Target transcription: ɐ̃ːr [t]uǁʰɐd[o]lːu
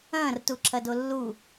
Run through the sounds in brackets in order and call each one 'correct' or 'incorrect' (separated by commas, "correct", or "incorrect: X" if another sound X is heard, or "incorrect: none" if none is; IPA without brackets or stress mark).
correct, correct